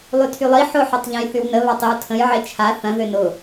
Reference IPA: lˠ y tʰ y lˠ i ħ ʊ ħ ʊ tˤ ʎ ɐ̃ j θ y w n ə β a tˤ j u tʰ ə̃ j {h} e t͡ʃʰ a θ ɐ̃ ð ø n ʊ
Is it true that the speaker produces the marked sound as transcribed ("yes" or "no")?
no